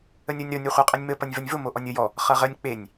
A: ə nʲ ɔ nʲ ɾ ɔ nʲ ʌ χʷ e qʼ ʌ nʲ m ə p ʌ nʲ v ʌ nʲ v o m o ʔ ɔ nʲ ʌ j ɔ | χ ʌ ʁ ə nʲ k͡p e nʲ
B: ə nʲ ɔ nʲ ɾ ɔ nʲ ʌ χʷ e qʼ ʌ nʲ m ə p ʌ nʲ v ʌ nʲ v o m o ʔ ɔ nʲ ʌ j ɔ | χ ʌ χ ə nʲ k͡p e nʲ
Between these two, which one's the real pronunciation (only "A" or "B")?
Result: A